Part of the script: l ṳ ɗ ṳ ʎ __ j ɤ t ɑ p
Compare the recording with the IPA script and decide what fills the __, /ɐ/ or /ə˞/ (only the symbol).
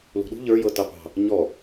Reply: ə˞